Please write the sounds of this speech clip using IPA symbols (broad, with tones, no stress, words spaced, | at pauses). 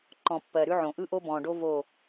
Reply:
ǃɔ̃˨pːɜ˨ɾʉ˦ʕõ˨ ʔɯ˦ʔo˦bɔ̃ː˨ɖo˦ vo˦˨